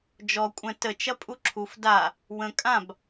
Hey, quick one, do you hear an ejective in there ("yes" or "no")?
yes